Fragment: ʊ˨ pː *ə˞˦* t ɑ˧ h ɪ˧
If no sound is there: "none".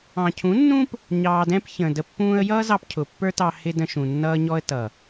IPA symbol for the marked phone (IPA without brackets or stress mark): ə˞˦